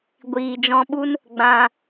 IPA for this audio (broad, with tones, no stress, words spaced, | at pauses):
ɡʷiː˨d͡ʒɔ̃˧ɓu˦n | ɡ͡bã˧